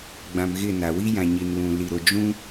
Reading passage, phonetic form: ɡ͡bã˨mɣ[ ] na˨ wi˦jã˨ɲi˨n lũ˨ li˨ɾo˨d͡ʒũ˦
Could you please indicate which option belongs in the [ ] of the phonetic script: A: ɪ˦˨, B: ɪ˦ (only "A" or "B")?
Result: A